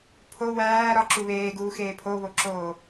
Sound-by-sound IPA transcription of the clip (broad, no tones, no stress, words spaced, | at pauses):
pʰo wæː ɾɒǁu βeːɡuːxeː pʰoβoǁoː